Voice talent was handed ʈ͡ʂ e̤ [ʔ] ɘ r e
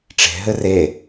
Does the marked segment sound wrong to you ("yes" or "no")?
yes